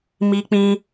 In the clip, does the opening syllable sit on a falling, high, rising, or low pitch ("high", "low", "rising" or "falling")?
high